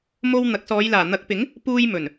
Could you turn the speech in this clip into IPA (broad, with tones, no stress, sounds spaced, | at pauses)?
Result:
m o˧ w n̪ ɐ˨˥ k̚ s ɔː˨˧ j l aː˨˩ n̪ ɐ˨˥ k̚ p ɪ˨˥ ŋ | p uː˧ j m ɵ˨˩ n